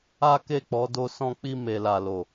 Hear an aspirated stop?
no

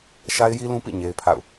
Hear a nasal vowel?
yes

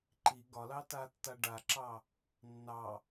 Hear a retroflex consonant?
yes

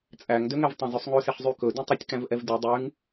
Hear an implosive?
no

